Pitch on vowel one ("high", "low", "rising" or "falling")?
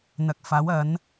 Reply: low